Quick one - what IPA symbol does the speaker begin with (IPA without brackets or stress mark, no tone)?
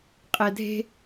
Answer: qʼ